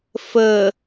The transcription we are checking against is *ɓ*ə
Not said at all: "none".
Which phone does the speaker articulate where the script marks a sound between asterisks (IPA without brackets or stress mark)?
f